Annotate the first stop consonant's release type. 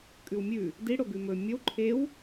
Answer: ejective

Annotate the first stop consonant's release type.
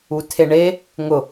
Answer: aspirated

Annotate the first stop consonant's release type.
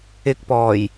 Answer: plain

